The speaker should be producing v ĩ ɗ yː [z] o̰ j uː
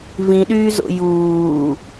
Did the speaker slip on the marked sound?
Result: no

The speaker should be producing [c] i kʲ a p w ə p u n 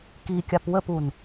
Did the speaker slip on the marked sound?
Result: yes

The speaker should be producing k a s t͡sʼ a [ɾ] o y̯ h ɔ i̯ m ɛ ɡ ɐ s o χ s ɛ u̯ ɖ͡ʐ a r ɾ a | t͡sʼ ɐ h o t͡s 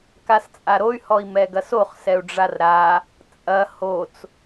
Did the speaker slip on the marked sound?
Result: no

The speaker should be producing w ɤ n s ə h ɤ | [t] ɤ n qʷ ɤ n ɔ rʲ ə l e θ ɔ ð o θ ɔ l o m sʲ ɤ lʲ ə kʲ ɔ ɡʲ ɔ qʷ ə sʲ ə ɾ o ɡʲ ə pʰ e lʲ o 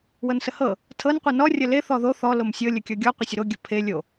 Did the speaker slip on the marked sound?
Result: yes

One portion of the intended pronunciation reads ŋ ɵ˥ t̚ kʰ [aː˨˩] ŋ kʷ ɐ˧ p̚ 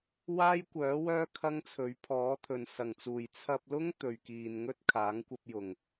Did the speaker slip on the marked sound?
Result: yes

